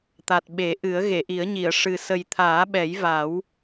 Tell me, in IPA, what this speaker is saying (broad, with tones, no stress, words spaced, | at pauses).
t̪a˨˩t̚ɓe˨˩˦ʔɨ˨˩˦ə̯ ɣe˨˩˨ʔi˨˩˦ə̯ɲi˨˩˨ə̯ ʂɨ˨˩ sə˨˩jt̪ʰaː˨˩˦ɓɛ˨˩˦j va˨˩˦w